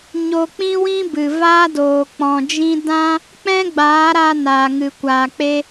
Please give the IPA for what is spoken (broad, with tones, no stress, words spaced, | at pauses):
ɲo˧k͡pĩ˦wĩ˦bɨ˨ vaː˦doː˨k͡pɔ̃˨d͡ʒĩ˦ dã˦ | k͡pɛ̃˦ɡ͡baː˨˦ɾa˧ naː˨ŋɨ˨kʷaː˨k͡pe˦